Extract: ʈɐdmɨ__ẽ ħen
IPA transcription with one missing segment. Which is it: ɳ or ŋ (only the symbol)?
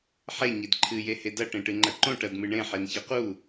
ɳ